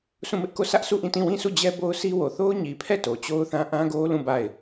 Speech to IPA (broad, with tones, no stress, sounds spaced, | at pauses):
s ũ˦˨ m ɪ˦ ʔ k o˦˨ s ä˦ ʔ sʰ u˦˨ ʔ ĩ˦˨ t ĩ˦˨ w ĩ˦˨ s u˦˨ d͡ʑ ɛ˦ b o˦ ʊ̯ sʰ i˦ w o˨ θ o˦ ʊ̯ ɲ i˨ pʰ ɛ˦˨ t o˨ t͡ɕ o˦ ʊ̯ θ ã˦ ʔ ã˦ ɡ o˦ l ũ˦˨ b a˦˨ ɪ̯